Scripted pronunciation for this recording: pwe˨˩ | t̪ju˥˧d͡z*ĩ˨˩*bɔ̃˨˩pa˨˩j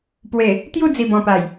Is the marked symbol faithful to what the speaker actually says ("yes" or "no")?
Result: no